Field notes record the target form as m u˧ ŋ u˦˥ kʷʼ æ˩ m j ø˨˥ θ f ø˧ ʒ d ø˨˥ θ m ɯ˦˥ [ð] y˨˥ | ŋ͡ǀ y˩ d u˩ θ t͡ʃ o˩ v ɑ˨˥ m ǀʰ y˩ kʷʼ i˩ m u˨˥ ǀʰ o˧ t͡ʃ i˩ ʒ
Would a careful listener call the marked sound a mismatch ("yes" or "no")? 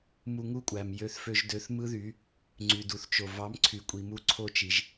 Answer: no